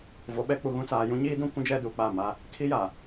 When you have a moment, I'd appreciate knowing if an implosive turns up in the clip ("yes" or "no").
yes